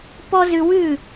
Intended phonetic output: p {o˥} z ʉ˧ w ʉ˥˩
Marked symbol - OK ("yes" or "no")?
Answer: no